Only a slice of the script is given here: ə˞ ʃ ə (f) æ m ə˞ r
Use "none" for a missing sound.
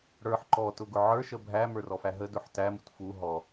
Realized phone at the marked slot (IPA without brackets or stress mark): bʱ